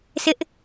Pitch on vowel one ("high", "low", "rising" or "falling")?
high